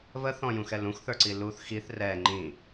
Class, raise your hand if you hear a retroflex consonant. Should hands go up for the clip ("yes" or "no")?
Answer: no